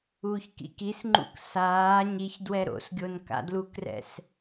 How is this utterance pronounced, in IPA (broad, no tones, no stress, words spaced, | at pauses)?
uːçkḭkisŋ͡ǃṵk saː ɲiç dwɛɾo̰sɡʲon ka̰dlukrɛ̰s